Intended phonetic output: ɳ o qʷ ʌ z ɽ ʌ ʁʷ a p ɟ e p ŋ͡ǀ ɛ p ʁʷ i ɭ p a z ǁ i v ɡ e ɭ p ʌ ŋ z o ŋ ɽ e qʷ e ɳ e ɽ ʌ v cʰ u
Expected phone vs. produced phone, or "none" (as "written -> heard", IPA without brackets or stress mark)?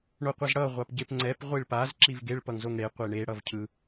u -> ɯ